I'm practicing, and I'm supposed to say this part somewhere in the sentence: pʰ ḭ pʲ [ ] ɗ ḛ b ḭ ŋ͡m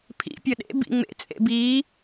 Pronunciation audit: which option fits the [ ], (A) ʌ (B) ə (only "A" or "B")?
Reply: A